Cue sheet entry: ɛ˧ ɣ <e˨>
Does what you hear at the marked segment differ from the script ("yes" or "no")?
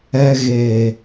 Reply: no